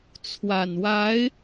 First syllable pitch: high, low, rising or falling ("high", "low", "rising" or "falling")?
low